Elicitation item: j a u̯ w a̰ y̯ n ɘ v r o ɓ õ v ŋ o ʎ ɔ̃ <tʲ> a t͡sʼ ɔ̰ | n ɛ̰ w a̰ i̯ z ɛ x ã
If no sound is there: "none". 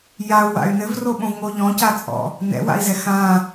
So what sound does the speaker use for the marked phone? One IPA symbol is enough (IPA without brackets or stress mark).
c